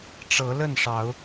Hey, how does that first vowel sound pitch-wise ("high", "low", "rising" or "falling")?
rising